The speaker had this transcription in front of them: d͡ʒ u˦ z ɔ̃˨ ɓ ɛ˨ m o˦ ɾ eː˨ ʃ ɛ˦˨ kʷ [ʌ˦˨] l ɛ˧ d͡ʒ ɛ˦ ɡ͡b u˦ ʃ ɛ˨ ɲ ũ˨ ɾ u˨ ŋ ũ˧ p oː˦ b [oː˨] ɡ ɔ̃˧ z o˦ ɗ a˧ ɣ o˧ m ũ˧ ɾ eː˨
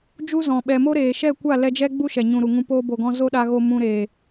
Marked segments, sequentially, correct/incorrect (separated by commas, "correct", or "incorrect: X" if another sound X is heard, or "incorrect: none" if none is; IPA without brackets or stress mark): incorrect: a˦˨, incorrect: o˨